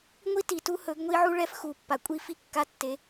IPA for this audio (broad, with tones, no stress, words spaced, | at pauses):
ŋʷi˦ti˨ tu˦hɵ˨˦ɡŋʷi˦ʕu˦ ɭɛ˦fxu˨pːa˨kʷʼi˦ fi˦kːa˦tːe˨˦